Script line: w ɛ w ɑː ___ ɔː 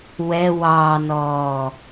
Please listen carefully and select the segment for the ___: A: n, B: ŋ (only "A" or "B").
A